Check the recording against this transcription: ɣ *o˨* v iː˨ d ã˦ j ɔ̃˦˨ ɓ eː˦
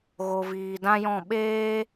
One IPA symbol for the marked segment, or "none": o˨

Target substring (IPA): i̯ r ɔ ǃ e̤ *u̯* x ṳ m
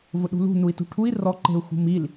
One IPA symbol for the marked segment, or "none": u̯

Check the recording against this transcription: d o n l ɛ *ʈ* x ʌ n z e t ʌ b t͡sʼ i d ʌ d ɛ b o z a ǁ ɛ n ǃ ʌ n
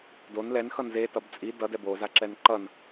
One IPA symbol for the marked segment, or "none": n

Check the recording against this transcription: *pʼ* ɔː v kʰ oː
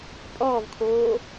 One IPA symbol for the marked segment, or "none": pʼ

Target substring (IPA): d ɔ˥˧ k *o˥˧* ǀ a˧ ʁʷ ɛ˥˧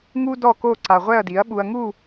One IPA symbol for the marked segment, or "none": o˥˧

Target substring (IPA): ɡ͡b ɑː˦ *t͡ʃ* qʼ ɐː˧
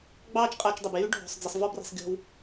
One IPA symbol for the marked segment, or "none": t͡ʃ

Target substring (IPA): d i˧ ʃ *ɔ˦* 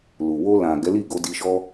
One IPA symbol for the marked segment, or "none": ɔ˦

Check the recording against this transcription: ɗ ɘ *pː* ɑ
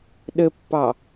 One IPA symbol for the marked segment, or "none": pː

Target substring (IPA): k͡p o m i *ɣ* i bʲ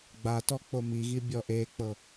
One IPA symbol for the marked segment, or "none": ɣ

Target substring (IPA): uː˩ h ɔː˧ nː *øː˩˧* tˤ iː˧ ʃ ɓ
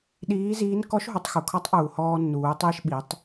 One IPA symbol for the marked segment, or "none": uː˩˧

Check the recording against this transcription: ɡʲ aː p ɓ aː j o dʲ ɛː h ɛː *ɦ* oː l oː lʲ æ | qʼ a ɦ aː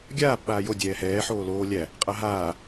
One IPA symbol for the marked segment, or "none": ħ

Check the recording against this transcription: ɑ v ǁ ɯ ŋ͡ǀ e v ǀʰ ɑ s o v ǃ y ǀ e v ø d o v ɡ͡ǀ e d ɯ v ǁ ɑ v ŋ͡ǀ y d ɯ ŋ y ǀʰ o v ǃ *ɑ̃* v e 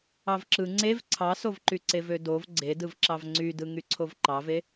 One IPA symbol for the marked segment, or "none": ɑ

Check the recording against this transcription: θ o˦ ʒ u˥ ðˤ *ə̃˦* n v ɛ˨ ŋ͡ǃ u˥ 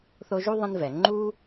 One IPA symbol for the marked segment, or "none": ə̃˦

